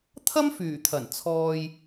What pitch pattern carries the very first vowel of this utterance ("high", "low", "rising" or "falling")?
high